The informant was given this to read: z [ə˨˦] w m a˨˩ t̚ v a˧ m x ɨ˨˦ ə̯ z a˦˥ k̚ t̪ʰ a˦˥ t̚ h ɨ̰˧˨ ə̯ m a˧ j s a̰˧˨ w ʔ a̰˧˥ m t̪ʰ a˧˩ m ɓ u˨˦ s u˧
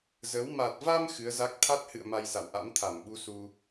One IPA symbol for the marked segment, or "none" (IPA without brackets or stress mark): ə˨˦